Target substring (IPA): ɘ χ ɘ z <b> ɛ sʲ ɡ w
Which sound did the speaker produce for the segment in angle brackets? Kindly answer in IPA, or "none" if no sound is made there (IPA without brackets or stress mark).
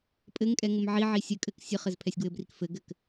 pʰ